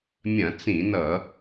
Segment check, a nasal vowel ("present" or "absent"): present